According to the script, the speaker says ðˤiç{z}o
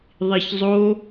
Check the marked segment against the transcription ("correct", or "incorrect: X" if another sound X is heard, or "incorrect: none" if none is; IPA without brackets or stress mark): incorrect: zˤ